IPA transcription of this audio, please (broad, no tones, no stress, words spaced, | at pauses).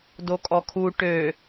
dokʼɔkʰu ʈø